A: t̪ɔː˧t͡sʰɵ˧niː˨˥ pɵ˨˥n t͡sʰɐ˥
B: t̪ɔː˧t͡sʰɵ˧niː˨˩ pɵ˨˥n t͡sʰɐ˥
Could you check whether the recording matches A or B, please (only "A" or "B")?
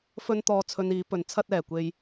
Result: A